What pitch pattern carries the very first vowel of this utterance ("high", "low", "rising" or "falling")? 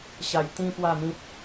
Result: low